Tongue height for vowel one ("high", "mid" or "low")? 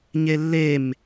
mid